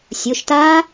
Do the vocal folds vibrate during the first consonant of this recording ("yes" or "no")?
no